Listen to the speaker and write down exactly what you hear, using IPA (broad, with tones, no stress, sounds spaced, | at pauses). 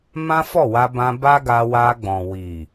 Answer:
m ã˦ f ɔ˦˨ w a˧ b ã˧ b a˦ ɡ a˧ w a˧ ɡ͡b ɔ̃˨ w i˨